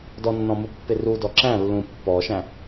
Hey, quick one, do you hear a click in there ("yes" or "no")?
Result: yes